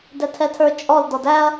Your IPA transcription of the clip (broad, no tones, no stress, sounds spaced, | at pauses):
d ɛ tʰ ɛ tʰ ə˞ t͡ʃʼ ɔ l d ɔ d æ ɐ̯